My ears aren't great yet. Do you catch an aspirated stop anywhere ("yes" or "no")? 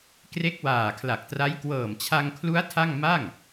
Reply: yes